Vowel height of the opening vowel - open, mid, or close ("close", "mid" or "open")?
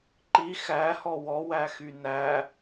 close